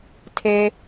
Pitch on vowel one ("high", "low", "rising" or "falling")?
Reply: low